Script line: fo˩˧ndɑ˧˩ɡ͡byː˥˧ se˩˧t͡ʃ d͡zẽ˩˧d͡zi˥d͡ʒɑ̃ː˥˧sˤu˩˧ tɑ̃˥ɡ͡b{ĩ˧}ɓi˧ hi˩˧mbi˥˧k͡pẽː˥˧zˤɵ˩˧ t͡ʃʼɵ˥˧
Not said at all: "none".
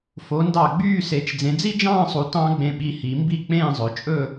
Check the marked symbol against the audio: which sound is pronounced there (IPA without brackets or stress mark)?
ẽ˧